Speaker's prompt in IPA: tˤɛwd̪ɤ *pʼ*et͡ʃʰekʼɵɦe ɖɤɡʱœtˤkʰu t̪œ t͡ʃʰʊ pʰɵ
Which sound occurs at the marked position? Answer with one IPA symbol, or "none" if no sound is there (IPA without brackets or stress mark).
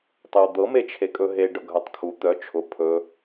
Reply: m